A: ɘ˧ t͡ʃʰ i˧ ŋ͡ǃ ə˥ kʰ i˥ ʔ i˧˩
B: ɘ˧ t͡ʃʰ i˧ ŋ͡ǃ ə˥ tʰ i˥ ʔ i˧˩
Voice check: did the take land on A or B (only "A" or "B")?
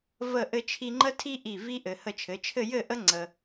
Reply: B